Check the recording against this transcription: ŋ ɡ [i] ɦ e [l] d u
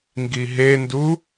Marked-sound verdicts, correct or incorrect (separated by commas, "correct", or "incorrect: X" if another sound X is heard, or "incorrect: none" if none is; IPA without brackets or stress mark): correct, incorrect: n